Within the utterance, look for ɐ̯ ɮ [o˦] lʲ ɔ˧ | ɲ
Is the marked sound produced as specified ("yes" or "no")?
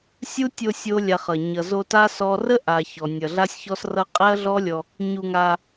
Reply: no